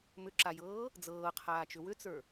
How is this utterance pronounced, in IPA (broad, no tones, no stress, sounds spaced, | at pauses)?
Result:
m ʏ ǁ a j ɤː | d͡z ɤː qʰ aː t͡ʃ ʏ w ʏ t͡s ə˞